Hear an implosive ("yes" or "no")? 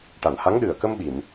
yes